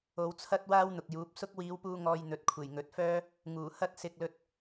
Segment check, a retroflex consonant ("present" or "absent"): absent